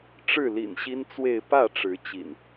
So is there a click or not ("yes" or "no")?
no